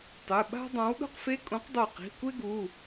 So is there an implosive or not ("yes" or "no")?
yes